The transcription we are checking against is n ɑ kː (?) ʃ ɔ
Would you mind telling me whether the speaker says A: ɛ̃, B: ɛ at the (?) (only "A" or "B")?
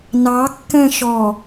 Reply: A